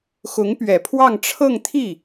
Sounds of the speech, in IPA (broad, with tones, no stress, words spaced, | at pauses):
xʊ˧˥ŋpɥɛ˨˩pʰwɑ˥˧ŋ ʈ͡ʂʰɤ˥˧ŋt̪ʰi˥˩